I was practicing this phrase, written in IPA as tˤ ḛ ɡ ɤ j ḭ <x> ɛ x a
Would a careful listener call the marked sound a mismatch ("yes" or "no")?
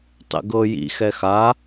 no